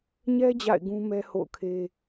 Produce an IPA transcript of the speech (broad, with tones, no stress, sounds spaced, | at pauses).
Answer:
ɲ ɛ˦ d͡ʑ a̰˦˨ ɪ̯ ɡ ũ˦ m ɛ˦ h o̰˦˨ ʊ̯ kʰ e˦